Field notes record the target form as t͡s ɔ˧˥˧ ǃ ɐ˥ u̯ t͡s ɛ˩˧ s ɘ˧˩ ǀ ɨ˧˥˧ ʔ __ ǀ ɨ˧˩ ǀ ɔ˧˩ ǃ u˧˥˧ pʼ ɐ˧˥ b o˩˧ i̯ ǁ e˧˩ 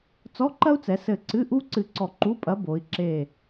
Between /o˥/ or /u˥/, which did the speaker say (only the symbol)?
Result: u˥